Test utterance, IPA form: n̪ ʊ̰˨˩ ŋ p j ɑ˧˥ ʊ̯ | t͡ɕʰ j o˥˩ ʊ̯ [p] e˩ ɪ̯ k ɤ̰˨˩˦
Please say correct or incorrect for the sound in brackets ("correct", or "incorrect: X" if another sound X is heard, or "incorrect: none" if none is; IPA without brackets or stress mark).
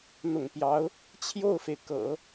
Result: incorrect: f